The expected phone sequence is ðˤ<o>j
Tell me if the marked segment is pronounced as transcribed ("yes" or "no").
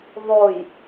yes